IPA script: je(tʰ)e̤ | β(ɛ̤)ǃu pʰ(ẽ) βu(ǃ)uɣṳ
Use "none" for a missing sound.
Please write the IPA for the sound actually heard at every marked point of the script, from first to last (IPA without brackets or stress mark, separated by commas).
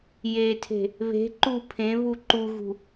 tʰ, e̤, ẽ, ǃ